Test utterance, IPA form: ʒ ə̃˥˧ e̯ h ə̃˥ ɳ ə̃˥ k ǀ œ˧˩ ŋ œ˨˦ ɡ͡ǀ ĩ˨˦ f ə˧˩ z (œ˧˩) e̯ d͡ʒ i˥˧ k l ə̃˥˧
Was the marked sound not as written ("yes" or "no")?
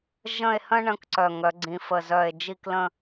no